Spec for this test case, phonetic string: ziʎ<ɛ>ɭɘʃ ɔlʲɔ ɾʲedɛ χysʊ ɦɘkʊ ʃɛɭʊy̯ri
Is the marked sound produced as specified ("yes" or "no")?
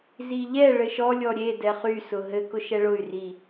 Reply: yes